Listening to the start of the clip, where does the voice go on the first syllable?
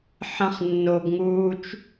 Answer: high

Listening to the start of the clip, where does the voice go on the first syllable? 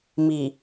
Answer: low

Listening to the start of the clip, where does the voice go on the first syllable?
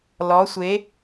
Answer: rising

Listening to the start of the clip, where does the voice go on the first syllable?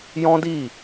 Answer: high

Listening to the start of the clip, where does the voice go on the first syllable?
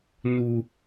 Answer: low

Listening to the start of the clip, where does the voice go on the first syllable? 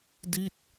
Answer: falling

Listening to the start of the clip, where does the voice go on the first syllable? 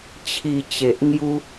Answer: low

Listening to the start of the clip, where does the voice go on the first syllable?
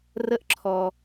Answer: high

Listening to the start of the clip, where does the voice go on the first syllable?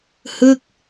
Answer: falling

